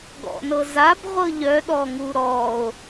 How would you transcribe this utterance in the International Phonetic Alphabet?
ɡ ɔ̰ n ɤ z a b ʁʷ ɤ ʎ œ ɗ ɔ ŋ u ɾ ɔ o̯

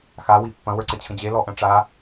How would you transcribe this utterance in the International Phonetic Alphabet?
x a w i pː ɐ̃ w ə˞ ǀ ə t͡ɕʰ ə̃ d͡ʑ e l ɔ ʔ ɐ̃ ʈ͡ʂ a

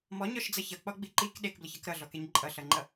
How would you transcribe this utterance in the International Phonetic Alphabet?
m ɔ ɲ ɔ ʃ d͡z ʌ ç ʌ k͡p ɔ ɡ͡b i ǃ i k ɗ e k b l ə ç ʌ k ɾ ʌ ɮ ɔ k e ɲ ǃʼ ʌ ɬ ʌ ŋ͡ǃ ʌ

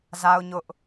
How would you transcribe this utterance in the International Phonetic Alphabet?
z a˦ ʊ̯ ɲ ʊ˦ ʔ

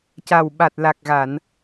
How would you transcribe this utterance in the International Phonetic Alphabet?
c a˨˩ w ɓ a˨˩ t̚ l a˨˩ k̚ ɣ a˨˩˨ n

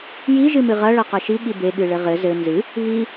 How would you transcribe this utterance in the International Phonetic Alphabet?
j i ʒ ɨ m ɨ ʁ ɐ ɭ ɐ q ɐ ʃ i ɠ i b e ɠ ɨ ɭ ɘ ʁ ɘ z ɘ n z ɨ | β i

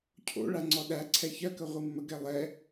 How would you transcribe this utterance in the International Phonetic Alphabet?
cʰ o̰ ɭ a ŋ͡ǀ ɔ ɗ æ ǀʰ ɛ ç ɜ k ə ʁʷ ɨ mː ə ɡ ɛ lˠ ɛ

